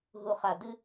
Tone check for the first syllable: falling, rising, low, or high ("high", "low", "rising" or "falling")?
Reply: low